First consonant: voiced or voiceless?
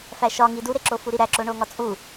voiceless